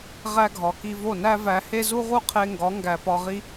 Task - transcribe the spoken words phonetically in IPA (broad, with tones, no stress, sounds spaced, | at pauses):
ʁ æ˧ ɡʱ ɒ˨ k i˧ v o˦˨ n æ˦ v æ˧ h e˦ z u˦ ʁ u˦ qʰ e˧ ŋ ɡ ɒ˨˦ ŋ ɡ æ˨ p ɒ˧ ʁ i˦